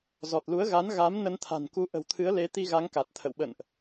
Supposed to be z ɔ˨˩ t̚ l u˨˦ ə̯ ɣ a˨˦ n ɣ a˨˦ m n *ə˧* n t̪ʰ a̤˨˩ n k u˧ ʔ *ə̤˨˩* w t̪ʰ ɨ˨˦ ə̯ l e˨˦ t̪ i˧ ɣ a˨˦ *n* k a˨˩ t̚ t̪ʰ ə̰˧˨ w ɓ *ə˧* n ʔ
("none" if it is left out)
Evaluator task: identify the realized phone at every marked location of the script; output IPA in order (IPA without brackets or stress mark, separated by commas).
ə˧, ə̤˨˩, ŋ, ə̰˧˨